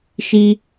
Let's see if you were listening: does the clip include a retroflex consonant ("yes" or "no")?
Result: no